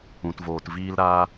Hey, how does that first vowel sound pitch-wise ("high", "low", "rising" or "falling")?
low